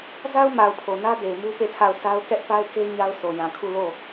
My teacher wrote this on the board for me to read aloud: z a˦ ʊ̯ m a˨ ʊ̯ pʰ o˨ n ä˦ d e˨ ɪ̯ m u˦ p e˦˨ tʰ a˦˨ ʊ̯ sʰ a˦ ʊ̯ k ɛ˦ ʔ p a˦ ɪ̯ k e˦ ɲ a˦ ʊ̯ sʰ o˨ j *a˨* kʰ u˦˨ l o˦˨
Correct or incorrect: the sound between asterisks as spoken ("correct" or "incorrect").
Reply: incorrect